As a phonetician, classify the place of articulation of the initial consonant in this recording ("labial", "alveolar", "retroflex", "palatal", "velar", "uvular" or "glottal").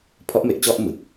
labial